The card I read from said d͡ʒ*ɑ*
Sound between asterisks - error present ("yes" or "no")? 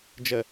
yes